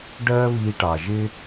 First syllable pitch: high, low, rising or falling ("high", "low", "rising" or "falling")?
high